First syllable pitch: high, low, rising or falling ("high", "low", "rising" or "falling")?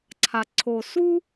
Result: low